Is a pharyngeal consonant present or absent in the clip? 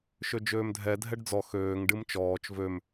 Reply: absent